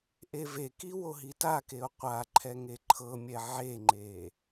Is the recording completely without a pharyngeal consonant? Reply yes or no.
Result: no